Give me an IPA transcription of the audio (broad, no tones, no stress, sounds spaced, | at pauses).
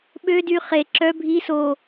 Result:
ɓ ø d y χ e ǁ œ bʱ i s o